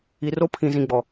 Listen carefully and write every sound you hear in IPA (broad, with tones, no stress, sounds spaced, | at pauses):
i˨ r o˦ pʰ ĩ˨ z ĩ˨ ɡ͡b ɔ˨